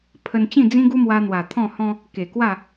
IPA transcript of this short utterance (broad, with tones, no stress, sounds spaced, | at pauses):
pʰ ə˧ n t͡ɕ ĩ˥˧ d͡z ĩ˦ ɡ u˦ m w a˧ n̪ w a˨˩ t̪ʰ ɔ̃˥˧ h ɔ̃˧ | k e˨˩ k w a˥˧